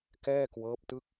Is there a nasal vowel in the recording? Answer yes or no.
no